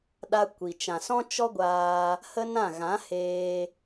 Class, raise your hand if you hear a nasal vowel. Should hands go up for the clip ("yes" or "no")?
yes